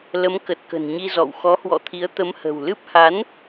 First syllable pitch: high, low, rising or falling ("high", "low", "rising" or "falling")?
rising